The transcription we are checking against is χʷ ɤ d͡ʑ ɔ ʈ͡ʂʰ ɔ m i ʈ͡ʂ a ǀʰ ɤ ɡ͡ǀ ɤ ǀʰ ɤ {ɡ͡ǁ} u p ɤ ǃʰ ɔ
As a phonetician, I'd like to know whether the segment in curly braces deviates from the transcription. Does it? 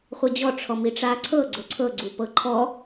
yes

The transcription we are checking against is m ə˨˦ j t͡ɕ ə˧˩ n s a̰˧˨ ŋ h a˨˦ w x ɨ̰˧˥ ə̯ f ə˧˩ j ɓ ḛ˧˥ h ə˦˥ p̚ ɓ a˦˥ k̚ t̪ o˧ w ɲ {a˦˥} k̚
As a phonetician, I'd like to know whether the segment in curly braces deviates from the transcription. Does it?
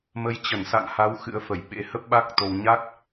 no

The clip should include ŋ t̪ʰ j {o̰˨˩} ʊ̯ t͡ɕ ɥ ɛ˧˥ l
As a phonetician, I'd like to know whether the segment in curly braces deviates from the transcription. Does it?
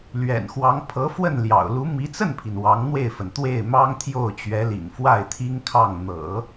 yes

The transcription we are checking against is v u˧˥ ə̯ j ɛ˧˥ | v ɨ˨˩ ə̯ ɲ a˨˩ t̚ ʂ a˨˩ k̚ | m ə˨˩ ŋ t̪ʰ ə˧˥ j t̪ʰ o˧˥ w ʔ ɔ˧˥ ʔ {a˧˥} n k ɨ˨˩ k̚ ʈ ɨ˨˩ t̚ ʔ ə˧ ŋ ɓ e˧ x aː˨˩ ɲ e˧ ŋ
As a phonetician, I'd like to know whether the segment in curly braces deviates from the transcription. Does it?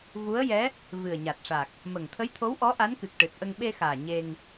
no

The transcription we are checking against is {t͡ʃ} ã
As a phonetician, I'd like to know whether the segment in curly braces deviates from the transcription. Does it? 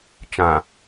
no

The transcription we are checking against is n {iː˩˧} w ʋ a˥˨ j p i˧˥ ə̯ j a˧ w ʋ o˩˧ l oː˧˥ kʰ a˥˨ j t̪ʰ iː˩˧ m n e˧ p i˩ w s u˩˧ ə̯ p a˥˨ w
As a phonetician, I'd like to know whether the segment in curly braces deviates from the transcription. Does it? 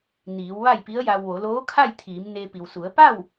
no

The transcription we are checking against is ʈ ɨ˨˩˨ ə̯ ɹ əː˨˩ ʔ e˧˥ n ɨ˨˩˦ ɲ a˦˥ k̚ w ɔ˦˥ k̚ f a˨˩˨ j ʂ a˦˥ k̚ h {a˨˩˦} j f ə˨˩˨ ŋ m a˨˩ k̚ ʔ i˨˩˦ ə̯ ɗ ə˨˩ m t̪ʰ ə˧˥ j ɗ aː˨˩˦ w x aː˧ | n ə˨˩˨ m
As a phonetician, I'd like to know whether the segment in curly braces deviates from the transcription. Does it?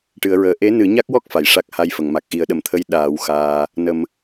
yes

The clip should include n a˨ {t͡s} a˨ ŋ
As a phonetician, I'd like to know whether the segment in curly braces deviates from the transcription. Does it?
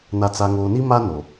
no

